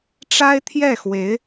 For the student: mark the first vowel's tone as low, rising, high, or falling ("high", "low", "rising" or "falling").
high